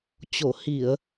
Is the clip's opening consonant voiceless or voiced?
voiceless